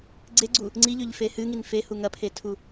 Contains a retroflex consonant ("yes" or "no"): no